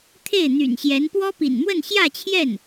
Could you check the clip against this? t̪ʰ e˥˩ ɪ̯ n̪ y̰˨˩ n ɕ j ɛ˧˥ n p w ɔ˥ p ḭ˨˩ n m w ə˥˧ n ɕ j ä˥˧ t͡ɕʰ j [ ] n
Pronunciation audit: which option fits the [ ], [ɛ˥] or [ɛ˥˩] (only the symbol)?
ɛ˥˩